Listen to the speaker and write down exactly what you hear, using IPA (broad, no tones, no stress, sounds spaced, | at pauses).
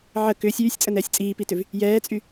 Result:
ʕ ə k ʏː sʲ yː sʲ t͡sʼ ə n ɛː sʲ t͡sʼ iː p i t ʏ v | j ɛː t͡sʼ y